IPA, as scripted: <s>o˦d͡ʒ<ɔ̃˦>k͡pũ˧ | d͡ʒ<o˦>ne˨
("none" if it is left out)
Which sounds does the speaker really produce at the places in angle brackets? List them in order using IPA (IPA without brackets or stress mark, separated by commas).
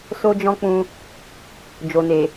s, ɔ̃˦, o˨